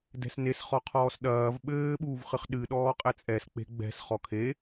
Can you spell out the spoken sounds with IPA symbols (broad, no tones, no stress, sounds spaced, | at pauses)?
d ɛ̤ s n e s χ ɔ qʰ ɔː s ɗ ɐː v ɓ ɘː ɓ uː v χ ɨ χ ɗ ɨ ɗ ɔː qʼ ɛ t͡sʼ ɛ s k͡p e̤ ɡ͡b ɛ̤ s χ ɔ kʰ e